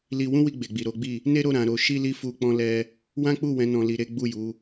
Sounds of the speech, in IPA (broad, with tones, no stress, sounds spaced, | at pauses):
l i˧ w ũ˦ w i˧ ɡ͡b e˨ ɡ͡b i˨ ɾ o˨˦ ɡ͡b i˦˨ | n e˦ ɾ o˦˨ ɾ ã˧ ɾ o˦ ʃ i˦ l i˦ f u˦ k͡p ɔ̃˦ l ɛ˦ | w ã˦ k͡p u˦˨ w ɛ̃˨˦ n ɔ̃˧ l i˧ ɾ e˦ ɡ͡b u˦˨ j u˨˦